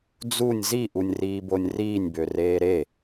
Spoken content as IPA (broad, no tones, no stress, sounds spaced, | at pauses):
d͡z u nʲ z i ʔ u nʲ r iː b o nʲ r iː nʲ b ø r eː ɾ e